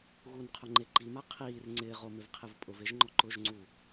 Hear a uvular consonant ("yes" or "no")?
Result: yes